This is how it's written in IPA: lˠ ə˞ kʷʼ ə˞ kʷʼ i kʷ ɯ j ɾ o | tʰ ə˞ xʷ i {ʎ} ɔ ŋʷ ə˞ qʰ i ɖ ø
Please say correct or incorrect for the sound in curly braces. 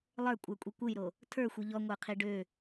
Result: correct